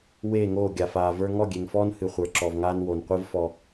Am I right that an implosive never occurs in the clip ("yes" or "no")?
yes